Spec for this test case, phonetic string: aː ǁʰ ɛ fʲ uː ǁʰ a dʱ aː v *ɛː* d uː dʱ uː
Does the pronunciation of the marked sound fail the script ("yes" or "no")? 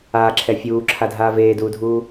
yes